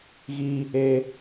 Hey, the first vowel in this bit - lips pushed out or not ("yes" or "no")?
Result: no